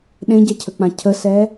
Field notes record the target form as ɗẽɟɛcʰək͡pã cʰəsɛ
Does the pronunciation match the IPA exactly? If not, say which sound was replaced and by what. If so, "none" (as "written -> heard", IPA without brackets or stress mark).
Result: none